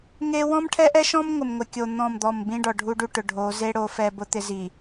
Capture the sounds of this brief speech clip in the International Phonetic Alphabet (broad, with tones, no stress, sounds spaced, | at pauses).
ŋ e˦ w ɔ̃˦ m ʈʰ ɛ˦ ʔ ɛ˦ ʃ ɔ̃˦ m ŋʷ ɪ˨ m ŋʷ ɪ˨ kʲ o˨ n̪ ɔ̃˦˨ m d̪ ɔ˦˨ m b ĩ˦ ɖ ɔ˨ ɖʱ u˦ ɖ u˦ ʈ ʊ˨ ɖʱ o˨˦ z e˦ ɽ o˦ f ɛ˦ b ʊ˦ t̪ ɪ˦ z i˨